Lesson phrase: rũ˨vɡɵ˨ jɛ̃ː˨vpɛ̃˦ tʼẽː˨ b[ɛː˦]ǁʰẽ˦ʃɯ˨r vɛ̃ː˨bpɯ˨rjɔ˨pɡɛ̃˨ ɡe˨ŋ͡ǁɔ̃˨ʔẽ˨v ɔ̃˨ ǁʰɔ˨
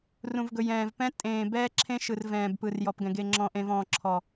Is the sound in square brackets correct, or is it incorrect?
correct